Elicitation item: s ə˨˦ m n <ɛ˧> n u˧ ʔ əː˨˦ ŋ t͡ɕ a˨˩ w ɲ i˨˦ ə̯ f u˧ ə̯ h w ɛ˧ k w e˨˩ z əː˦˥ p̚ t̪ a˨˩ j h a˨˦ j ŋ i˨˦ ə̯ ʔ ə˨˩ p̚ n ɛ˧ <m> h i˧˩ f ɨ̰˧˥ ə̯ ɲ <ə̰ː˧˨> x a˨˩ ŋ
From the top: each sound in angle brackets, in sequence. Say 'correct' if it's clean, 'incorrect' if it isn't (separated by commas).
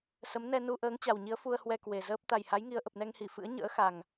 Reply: correct, incorrect, incorrect